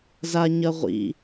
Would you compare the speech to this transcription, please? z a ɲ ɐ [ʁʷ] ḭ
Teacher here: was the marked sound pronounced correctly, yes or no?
yes